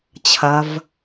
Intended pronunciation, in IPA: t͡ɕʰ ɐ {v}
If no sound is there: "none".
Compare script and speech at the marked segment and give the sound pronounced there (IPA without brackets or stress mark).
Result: v